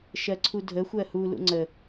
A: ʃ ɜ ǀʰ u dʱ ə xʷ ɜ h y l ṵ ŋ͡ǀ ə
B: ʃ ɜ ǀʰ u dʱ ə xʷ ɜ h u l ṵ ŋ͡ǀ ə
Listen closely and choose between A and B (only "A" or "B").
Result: B